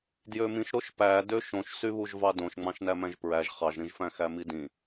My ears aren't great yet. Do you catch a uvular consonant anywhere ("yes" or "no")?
yes